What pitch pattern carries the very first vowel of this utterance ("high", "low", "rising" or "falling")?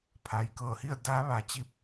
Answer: low